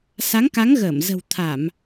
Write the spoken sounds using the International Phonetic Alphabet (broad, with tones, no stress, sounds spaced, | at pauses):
s a˨˦ ŋ k a˨˦ ŋ ɣ əː˧˩ m z ə̤˨˩ w t̪ʰ a˧˩˨ m